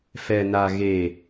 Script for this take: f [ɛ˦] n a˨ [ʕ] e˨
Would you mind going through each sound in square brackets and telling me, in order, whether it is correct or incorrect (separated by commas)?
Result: incorrect, incorrect